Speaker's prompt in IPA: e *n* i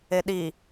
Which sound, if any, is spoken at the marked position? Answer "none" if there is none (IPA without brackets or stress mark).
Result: ɗ